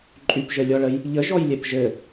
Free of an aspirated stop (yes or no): yes